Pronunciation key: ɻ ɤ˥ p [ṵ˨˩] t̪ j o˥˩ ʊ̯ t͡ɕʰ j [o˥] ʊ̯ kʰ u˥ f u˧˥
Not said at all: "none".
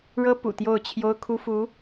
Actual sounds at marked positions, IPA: ṵ˨˩, o˥

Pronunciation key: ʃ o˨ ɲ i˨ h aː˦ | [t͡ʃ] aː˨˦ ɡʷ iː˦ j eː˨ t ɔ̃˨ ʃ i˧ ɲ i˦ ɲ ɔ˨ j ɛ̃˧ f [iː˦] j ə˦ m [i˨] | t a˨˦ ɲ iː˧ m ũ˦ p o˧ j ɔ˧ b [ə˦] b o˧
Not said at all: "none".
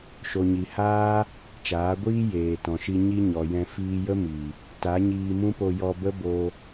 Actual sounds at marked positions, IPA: t͡ʃ, iː˧, i˨, ə˦

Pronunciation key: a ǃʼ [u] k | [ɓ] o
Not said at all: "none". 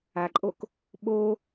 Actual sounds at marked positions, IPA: o, ɓ

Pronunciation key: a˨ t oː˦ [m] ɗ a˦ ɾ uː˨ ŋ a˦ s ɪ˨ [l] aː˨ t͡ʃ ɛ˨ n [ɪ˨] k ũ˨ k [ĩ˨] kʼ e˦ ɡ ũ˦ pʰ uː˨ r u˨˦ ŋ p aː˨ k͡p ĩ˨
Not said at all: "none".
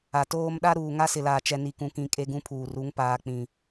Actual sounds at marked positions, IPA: m, l, i˨, ĩ˨

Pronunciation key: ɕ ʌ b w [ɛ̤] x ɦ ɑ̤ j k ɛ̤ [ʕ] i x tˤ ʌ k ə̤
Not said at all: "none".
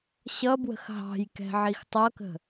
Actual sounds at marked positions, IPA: ə̤, ʕ

